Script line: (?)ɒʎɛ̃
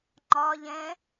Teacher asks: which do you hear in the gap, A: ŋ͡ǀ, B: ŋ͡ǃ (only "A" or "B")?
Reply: B